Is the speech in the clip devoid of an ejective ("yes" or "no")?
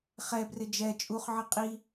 no